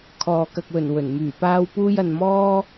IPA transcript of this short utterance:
kʰ ɔː˨ k ɐ˨ k̚ w ɵ˨˩ n w ɵ˨˩ n m yː˨˩ p aː˧ w p uː˧ j ɐ˨ n m ɔː˥

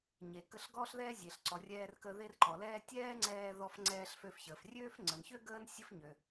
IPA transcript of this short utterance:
ɲ e˩ k ə˧ ɬ ɡ ɔː˥ ɬ ð ɛː˥ zʲ e˩ ɬ ǀ ɔ˩ rʲ ɛː˧ r k ə˧ ð e˧ r ǃ ɔ˩ l ɛː˧ tʲ ɛː˥ ŋ͡ǀ ɛː˧ ð ɔ˧ f ŋ͡ǀ ɛː˧ ɬ f ø˧ f ç əː˩ f rʲ øː˥ f ŋ͡ǀ ə˩ n ç ø˥ ɡ əː˥ n sʲ ə˥ f ɲ ø˩

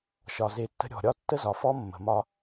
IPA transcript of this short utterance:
ʃ ɒ˨ z e˨ tː ə̤˦ ɾʲ ɔ̤˨ ɾʲ ɒ˦ tː ə˦ z ɒ˨ f ɔ˦ mː ə̤˨ m ɒ˦

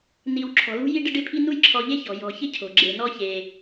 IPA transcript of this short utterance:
n i˨ w ǁʰ ɔ̤˩ l ṳ˦ j i˦ ɖ ɪ˦ ɖ ɪ˦ pʰ i˦ n u˦ j ǁʰ ɔ˨ ʎ e˥ ç ɔ̤˩ j ɔ̤˨ ç ɪ˥ cʰ o̤˩ ɡ͡ǁ e˩ n ɔ˦ ç e˩

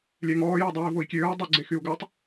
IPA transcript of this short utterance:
lʲ ɛ ŋ ɔː j ɔ dˤ iː v o i̯ kʲ øː u̯ dˤ ɛ ɡ͡ǀ e x y u̯ ɡ œ tˤ

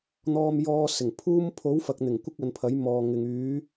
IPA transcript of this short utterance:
n̪ ɔː˧ m j ɔː˧ s ɪ˨˩ ŋ pʰ uː˥ m pʰ o˨˥ w f ɐ˨ k̚ n̪ ɪ˨˩ ŋ kʷ ɪ˥ k̚ ɐ˨˧ n pʰ ɐ˨˥ j m ɔː˨ ŋ ɪ˨ ŋ yː˨˥

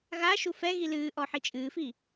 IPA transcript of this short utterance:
ɣ a ʃ u f ɛ ɣ i l ɨː ʔ ɔ ħ i t͡ʃʼ ɨː f i

